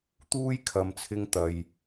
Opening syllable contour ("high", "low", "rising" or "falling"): high